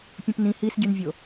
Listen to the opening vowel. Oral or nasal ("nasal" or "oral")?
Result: nasal